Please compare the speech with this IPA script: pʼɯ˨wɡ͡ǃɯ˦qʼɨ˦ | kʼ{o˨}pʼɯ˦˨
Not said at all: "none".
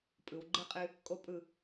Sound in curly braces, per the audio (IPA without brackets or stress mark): o˦